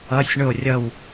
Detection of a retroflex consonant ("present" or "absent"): present